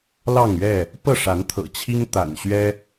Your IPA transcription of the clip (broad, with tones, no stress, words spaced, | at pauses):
lɑ˥˨ŋɥɛ˥˨ | pɤ˥˨ʂa˨˦nt̪ʰɤ̰˨˩t͡ɕʰi˦ŋ t̪a̰˨˩nɕɥɛ˦